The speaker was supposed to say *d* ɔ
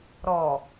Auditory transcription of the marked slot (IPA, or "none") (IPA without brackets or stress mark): ɾ